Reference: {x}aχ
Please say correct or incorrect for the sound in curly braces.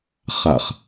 incorrect